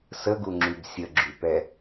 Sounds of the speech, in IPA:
səɡuŋ͡ǁyb sʲəɡ͡ǁypɛ

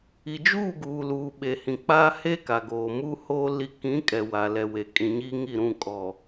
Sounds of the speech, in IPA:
i˨d͡ʒuː˦˨ɡuː˨ luː˨ɓe˨hĩ˨ k͡paː˦he˦ka˨ ɡoː˨mu˦hoː˦ li˦ kĩ˨˦ kʼɛ˨wa˨lɛ˨we˨ kʼĩ˨ɲiː˦ŋi˦˨ɾũ˦˨ kʼɔ˨

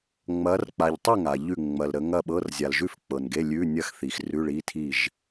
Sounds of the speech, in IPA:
ŋ͡mɐ˨˦rk͡pa˨ʎtˤɪ˥˨ ŋa˨ʎʉ˥˨ ŋ͡mɐ˨lɾə˨˦ŋɐ˥˨ɓɤ˧˥˧r zʲa˨lʒʉ˥˨f k͡pɤ˨nɡe˧˥˧lʲʉ˧˥˧ nʲɐ˥˨xθi˨xrʉ˧˥˧ ɭi˧˥˧tʰi˥˨ʒ

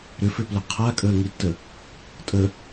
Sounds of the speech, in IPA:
ɾʏfʏplʊ qʰakʼəːŋitːə | tʼə

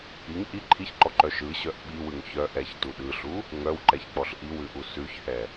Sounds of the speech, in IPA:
iŋ ʔi ǃʰiçǃɔǃœ ʃɯɕœʔ ɓiwɯŋ çœ ʔɛçtu ɗɯɬu | ŋœwǃɛçk͡pɔɬ ʔiwʉʔu sʉçhɛ

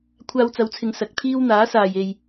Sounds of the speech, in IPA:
kʷʰaː˧wt͡sɐ˨˧wt͡sʰɪ˨ŋ sɐ˨˥k̚ t̪ʰiː˥w n̪aː˨˥saː˨j e˨j

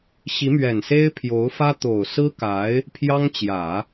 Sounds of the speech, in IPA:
ɕi˧˥mɥɛ˨˩nse˥ɪ̯ pʰjo˧˥ʊ̯fä˥t̪o˨˩ʊ̯ sɹ̩˥ka˧˥ɪ̯ | pʰjɑ˥ŋt͡ɕjä˨˩˦

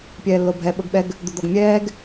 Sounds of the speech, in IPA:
pʲɛːlːobʱɛ ɓɤɡɓɛɡ | d̪ud̪ɔɡmʲɛːɡ

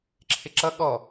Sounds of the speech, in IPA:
ǁʰɪǁʌ ɠɔ

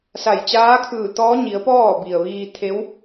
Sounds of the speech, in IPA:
sa˧˩j t͡ɕaː˧˥kʰɯː˧˩t̪ɔː˧˥ɲi˩˧ə̯ pɔː˥˨bi˩ə̯ʋiː˧ t̪ʰe˧˥w

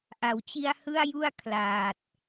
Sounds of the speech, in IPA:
ʔa˩˦wt͡ɕi˧a̯ hɯ˥˩a̯ju˥˩a̯ kʰlaː˨˩t̚

